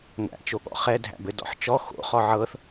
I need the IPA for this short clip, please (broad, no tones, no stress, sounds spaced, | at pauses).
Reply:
ŋʷ æ̰ t͡ʃ o ɠ ɔ̰ χ ɛ dʱ æ̰ b ɘ d ɔ̰ ħ t͡ʃ ɔ x o̰ χ ɔ ʕ ɤ θ